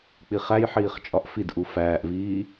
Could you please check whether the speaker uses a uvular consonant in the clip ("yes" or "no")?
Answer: yes